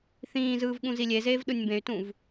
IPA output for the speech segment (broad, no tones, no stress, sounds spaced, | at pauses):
θ ĩː z ɯː v ɠ ũ z i lʲ e z eː v ɗ ɯ nʲ m b ẽ y̯ t ũ v